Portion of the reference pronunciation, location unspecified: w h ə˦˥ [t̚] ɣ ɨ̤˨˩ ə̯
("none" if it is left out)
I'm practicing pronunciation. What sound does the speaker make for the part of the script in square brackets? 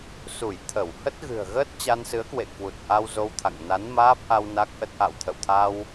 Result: t̚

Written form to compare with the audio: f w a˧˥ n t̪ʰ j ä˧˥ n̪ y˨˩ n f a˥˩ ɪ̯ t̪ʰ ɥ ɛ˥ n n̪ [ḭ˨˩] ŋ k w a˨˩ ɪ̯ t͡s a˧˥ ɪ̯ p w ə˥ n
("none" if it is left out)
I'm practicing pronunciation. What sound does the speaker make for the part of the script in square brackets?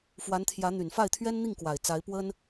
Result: i˥˩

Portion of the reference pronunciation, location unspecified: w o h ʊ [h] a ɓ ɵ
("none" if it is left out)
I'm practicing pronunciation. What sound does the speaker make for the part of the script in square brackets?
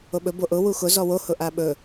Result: ʔ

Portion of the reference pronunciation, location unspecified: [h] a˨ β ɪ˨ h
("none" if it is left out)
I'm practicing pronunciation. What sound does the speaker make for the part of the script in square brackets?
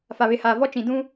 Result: f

